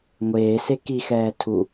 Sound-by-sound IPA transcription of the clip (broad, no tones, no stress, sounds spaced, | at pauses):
ŋʷ eː s e k i x ɛː tʰ u